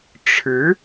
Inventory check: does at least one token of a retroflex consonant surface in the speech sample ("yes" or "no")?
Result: yes